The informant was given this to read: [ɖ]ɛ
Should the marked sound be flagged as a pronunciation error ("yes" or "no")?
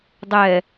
yes